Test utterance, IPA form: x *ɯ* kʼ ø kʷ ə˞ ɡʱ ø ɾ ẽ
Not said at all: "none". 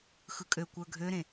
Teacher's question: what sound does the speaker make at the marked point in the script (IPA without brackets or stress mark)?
ɯ